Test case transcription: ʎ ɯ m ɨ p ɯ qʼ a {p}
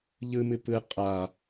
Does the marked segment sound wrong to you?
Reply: yes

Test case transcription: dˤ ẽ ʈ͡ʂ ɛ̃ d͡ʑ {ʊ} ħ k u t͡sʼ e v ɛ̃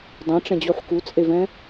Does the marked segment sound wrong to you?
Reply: yes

